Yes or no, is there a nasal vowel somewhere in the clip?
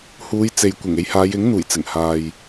no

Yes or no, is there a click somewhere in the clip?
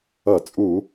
no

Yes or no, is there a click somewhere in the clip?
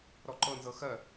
yes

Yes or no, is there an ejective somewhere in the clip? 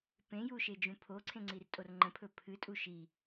yes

